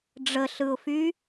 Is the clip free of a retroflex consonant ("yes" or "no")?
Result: no